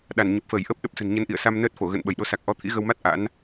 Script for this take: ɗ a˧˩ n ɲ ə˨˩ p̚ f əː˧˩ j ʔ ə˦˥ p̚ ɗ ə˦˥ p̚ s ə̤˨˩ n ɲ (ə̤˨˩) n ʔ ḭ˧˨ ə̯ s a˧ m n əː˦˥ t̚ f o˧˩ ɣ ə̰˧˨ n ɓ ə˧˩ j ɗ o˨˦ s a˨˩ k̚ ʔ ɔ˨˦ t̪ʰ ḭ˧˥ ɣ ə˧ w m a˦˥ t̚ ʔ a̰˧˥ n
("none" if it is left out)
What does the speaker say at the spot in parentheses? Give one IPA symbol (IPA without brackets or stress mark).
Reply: ə˨˦